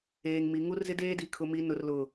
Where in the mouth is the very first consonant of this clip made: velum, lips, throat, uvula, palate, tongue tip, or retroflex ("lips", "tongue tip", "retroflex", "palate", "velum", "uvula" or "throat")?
velum